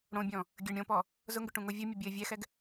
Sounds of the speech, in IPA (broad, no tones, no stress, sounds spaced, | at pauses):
ɽ õ bʲ ɔ̃ | ɡʲ ɘ ɳ ɾʲ õ p ɔ | z ʊ ŋ ɡ ʏ ʈ ũ ŋ o vʲ o mʲ ɘ bʲ ɘ vʲ ɛ x ɛ ɡ